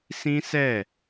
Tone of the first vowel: high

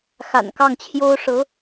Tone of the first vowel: low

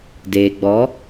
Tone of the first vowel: low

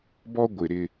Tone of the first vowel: high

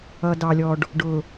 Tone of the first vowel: low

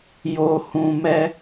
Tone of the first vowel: low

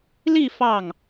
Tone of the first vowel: falling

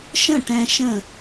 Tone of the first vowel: falling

